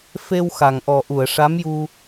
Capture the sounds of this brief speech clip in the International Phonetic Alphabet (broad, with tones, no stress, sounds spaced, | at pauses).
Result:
f e˧ w x a˨˩ ŋ ʔ ɔ˨˩ ʔ u˨˩˨ ə̯ ʂ a˧˥ m j u˧